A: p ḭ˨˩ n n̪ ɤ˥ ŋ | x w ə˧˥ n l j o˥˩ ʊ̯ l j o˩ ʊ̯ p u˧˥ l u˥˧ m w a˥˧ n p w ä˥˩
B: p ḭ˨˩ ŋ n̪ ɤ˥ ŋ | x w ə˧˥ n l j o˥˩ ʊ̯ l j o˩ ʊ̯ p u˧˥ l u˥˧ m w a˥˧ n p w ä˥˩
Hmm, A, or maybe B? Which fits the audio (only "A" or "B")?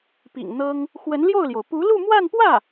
B